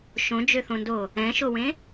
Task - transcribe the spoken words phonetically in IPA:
ʃ õ d͡ʒ ø θ õ n d oː | ɛ̃ ʃ o w ẽ

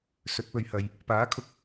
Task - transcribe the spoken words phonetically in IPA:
s ɵ˨˥ t̚ p ɵ˧ ɥ h ɐ˧ j | p aː˨˥ kʰ ʊ˥ k̚

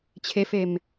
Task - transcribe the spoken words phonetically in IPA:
t͡ɕʰ e f e m

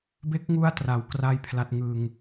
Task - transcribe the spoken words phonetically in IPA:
b e˦˥ k̚ ŋ u˦˥ a̯ t r a˩˦ w k r a˥˩ j pʰ l a˦˥ t̚ ŋ ɯ˧ ŋ

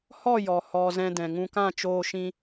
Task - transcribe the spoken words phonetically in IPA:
h ɔ˦˨ j ɔ˨ h ɔ˨ z ɛ̃˧ d ɛ̃˨ ŋ ũ˧ k ã˦˨ t͡ʃ oː˧ ʃ ĩ˧

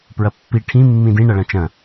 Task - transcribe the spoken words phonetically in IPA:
p ɹ ɐ pː i ʈʰ ĩ mː ĩ d ĩ ɳ ɐ ɭ ɐ̃ t͡ʃ ɐ̃

